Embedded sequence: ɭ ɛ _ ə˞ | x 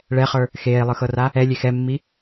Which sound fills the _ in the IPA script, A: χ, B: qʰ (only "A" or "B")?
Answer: A